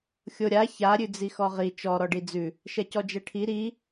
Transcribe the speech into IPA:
xʲoɾʲa ça ɾʲʉd͡zixɔʁi t͡ʃɔ ɾɔɖid͡zʉ | ʃɛcɔd͡ʒɛʈʰi ɾi

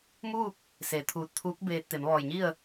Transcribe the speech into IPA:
muː˥˨k̚ | se˩˧ t̪ʰuː˧˩t̚t̪ʰuː˧˥k̚ beː˧t̚ t̪e˩˧mʋɔː˧˩jɲi˥˨ə̯

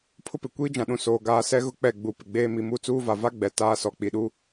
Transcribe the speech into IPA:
pʰʊ˦pɪ˨ kʷiː˦d͡ʒã˨ɗũ˨ soː˨ɡaː˨˦sɛ˦ ɣʊ˦k͡pɛ˦˨ ɡ͡bu˨pɪ˨ ɡ͡beː˦ mi˨mu˦t͡suː˦va˨ va˦ ɡ͡bɛ˨taː˦sɔ˨ k͡pi˨ɗu˦

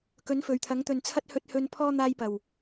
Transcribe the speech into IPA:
kɵ˨˥nfɵ˨ɥt̪ʰɐ˨˥ŋ t̪ɵ˨˩nt͡sʰɐ˧t̚hɵ˨t̚hɵ˨n pʰɔː˧ n̪aː˧jpɐ˨˩w

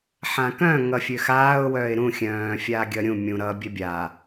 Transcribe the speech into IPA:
ħãkœ̃ ŋʌfʲøxaːʊ̯ wœːɪ̯ɾũ xʲœ̃ː fʲaːɡʲʌɾʲũ mʲũ ɾʌ bʲœbʲa

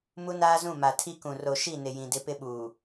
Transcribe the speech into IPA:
mu˦naː˦zũ˦˨ ma˨tʰi˦kũ˨ ro˨ʃi˦˨nɪ˨ jĩ˨ dɪ˦pɪ˦ ɓuː˨

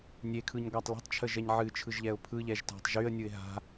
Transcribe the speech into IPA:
nʲekʰɯɲ ɡʷatˤlə̤tˤt͡ʃʰə ʒɛɲʕɨt͡ʃʰɯʒʎɛʊ̯ pʰɯʎɛʒ ta̤tˤʒyə̯nʲɯɪ̯ ɦa̤

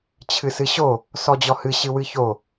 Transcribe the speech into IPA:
t͡ɕʰɨsɨɕo | sɔd͡ʑɔhɨ ɕɨwɨço

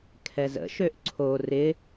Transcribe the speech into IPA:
kʰɛzə̰ ʃøʔǀʰo rɪ

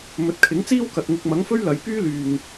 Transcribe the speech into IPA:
mɵ˨˥t̚kʰɪ˨˥ŋt͡siː˥wkɐ˨t̚ ŋɪ˧k̚mɐ˨˥ŋfɵ˥ɥ lɐ˨jpyː˥ lyː˨ŋ

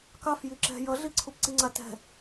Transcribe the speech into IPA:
kɑf jiǁɛ̤ jʌɮi ǀʰupǀiŋ͡ǀatɛ̤

